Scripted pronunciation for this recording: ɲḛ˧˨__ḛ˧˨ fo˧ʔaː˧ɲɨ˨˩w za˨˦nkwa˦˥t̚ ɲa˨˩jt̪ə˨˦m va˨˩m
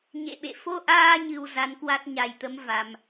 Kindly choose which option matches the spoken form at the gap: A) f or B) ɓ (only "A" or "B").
B